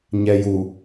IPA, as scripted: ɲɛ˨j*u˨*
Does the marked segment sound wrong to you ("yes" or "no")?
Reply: no